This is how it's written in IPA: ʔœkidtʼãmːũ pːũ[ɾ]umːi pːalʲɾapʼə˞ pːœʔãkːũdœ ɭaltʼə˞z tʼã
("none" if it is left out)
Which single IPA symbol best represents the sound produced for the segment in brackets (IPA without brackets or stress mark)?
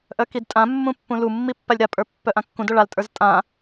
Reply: l